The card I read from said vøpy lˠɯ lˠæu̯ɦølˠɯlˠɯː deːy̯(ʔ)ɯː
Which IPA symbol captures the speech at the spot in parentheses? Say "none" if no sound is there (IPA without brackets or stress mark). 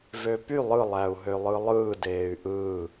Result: ʔ